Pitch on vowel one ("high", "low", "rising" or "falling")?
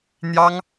high